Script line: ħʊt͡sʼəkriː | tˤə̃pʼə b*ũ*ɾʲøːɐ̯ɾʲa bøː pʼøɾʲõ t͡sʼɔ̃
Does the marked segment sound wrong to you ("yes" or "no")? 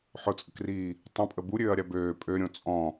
yes